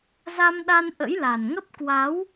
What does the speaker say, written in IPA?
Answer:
za˧mɗa˧n ʔə̰˧˥jla˨˩nŋə˦˥p̚ kwa˨˦w

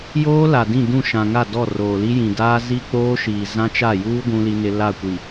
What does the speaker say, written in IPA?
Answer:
joː˦ la˨dĩ˦˨dũ˦˨ ʃã˨ŋa˦˨dɔ˦˨ roː˨li˦jĩ˨ daː˦zi˦k͡poː˦ ʃiː˨zã˦t͡ʃa˦˨juː˦ ɡʷũ˦li˦nɪ˦ la˦˨kʷi˨

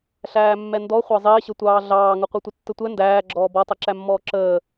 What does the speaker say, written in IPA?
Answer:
ɬæːmːɛndɔ χʷɑzˤɪːɕətʷɑː ɮɑːŋʊ qʷə˞tʷətːətʷɛ ndæːɡ͡ǁɔː bɔtˤɛǁæmːɔː ǁəː

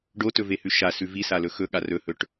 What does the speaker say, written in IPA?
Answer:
ɖotɵvehʉ ʃasʉ visalɵ xɵɠa rɵhɵʈ

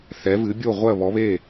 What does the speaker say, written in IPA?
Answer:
θɛ˩˥vɨ˩˥bʲo˥˩ʁʷɜ˥˩ βɔ˩˥βe˥˩

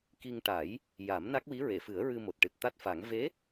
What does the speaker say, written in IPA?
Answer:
ki˧ŋ ʈa˨˩˦j | ja˨˩˦m na˦˥k̚wi˧˥ɹe˨˩˨fɨ˨˩˦ə̯ ɹɨ˧mo˨˩t̚ʈɨ˨˩t̚ t̪a˦˥t̚fa˨˩˦ŋ ve˧˥

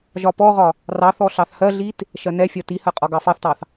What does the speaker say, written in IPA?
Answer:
ʒɒpɔʁɒ | rɑθɔ ɬɑθhɜɮit | ʃɜnɛfʲɒ tihɜ qʼɒɡɑfɑθtɑθ

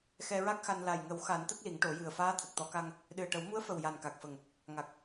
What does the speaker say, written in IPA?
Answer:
xɛ˧ɹa˦˥k̚xa˧n la˨˩jŋə˨˩˦wxa˨˩˦n t̪ə˦˥k̚li˨˩˦ŋʈo˨˩˦jɨ˨˩ə̯ faː˧˥t̪ʰə˨˩k̚t̪ɔ˨˩˦ka˧ŋ | ɗɨ˨˩ə̯ʈə˨˩˦wmu˧˥ə̯fə˨˩w ja˨˩nka˨˩k̚fə˨˩ŋ | ŋa˨˩k̚

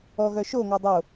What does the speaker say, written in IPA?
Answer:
ɔɣœ ʃoŋɑ dˤo

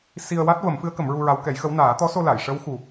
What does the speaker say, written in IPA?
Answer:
si˧ə̯wa˦˥t̚ və˨˩˦mfɨ˧˥ə̯ kə˨˩˦mɹu˧ɹa˧˥w kɛ˨˩˦jxə˧˥w naː˨˩˦t̪ɔ˧˥so˧la˨˩˨j ʂə˧˥wxu˨˩

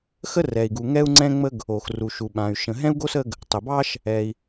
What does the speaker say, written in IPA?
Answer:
xə˥rɛ˩i̯ɡu˩ ŋɛ˥u̯ŋ͡ǀɛ̃˥ŋ͡mə˥ɡ | o˩x ru˩ʃu˩ɓã˩y̯ ʃə̃˩ɦɛ̃˥u̯ɡo˥s ə˥ɡ | tˤə˩bɑ˥ʃ | ɛ˩i̯

